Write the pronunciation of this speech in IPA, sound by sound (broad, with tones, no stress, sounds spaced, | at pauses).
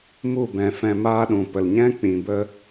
m u˦˨ b ɛ̃˨ f ɛ̃˧ m aː˦ ɗ ũ˨ p ə˨ l ɲ ɛ̃˦ k͡p ĩ˨ b ə˦